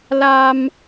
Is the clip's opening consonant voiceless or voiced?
voiced